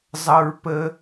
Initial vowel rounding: unrounded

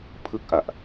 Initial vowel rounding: unrounded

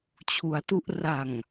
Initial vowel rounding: rounded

